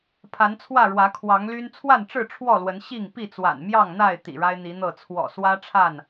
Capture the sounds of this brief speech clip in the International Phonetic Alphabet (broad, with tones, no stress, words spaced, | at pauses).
pʰa˨˦nt͡sʰwä˥˨ɻwä˨˦ kʰwɑ˨˦ŋly˦n t͡sʰwa˥˨nʈ͡ʂɻ̩˥˨ ʈ͡ʂʰwɔ˥˨lwə˨˦n ɕi˥˨ŋ pi˥˨t͡swa̰˨˩nmjɑ˥˨ŋn̪a˥˨ɪ̯ t̪ḭ˨˩ɻa˦ɪ̯n̪i˨˦n̪ɤ˥˨ t͡sʰwɔ̰˨˩swä˦ ʈ͡ʂʰa˥˨n